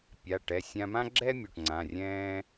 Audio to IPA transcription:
pʲ a˩˧˩ ʈ ɛ˩˧˩ sʲ ã˧ m ã˥ ɡ͡ǁ ɛ˥ mʲ o˩˧˩ ʈ ŋ͡ǀ ã˩˧˩ rʲ ɛ̃ː˥

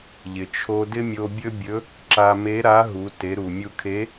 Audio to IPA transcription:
ʎ ɪ˩ t͡ʃʰ o˧ d ɪ˥ mʲ o˧ bʲ ɵ˥ bʲ ɵ˧˥ | ǁ a˧ m e˧˥ ɾ a˧˥ ɦ u˩˧ t e˩˧ ɾ u˩ mʲ u˧ kʰ e˧˥

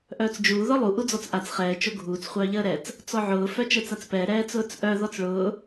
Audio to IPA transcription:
ʔ œː t͡s d͡ʒ uː ð ɔ lˠ u ʔ u d͡z ɔ t͡s ʔ a t͡s χ ɛː t͡ʃ o ɡʱ uː t͡s χʷ œː ʎ əː ɾ ɛ t͡s | t͡s ɔ ʕ ʊː f œ t͡ʃ əː t͡s a t͡s p ɛː ɾ ɛː t͡s ʊː t͡s ʔ œ ð ɔ t͡s ɭ ʊː

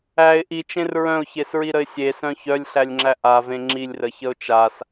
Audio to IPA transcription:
æ ɪ̯ ʔ i t͡ʃ ẽ r ɹ œ̃ ʊ̯ ç e s ɹ i ɾ ə ɪ̯ sʲ e s œ̃ ç œ lʲ ɬ æ lʲ ŋ͡ǁ æ ʔ a v ẽ ŋ͡ǁ i lʲ r ə ç ə ʊ̯ t͡ʃ a s

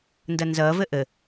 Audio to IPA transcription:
n d ʌ n z ʌː v ə ʔ ə

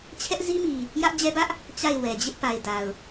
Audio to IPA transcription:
t͡ɕʰ ɛ˦ ʔ z i˦ m i˨ | j ä˦ ʔ d͡ʑ ɛ˦ b ä˦ ʔ | t͡ɕ a˦˨ ɪ̯ w ɛ˨ d͡ʑ ɪ˦ ʔ p a˨ ɪ̯ d a˨ ʊ̯

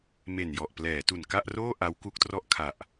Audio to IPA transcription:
m e˨˩ n j ɔ˨˩ ʔ p l ɛː˩˦ t u˨˩ n k a˥˩ ʔ r oː˥˩ ʔ a˦˥ w k u˦˥ k̚ t r ɔ˥˩ ʔ kʰ a˨˩ ʔ

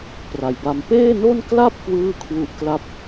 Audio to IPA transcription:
p r a˨˩ j b a˧ m p eː˥˩ n o˥˩ n k l a˥˩ p̚ k w ɯː˥˩ kʰ w u˦˥ ʔ k l a˥˩ p̚

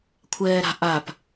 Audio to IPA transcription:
kʷʰ ɛː ɾ a̤ ʔ a p

